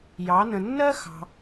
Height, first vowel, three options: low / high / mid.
low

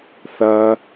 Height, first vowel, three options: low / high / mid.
low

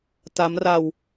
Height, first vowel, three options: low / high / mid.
low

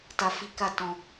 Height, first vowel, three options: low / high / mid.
low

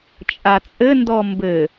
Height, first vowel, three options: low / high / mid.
low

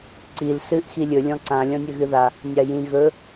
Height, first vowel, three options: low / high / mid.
high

